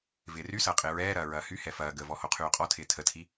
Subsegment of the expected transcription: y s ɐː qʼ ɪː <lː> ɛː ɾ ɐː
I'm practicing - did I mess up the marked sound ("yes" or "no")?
yes